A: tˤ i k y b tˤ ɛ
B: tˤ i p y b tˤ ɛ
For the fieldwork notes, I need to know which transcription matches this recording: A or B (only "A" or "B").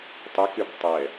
A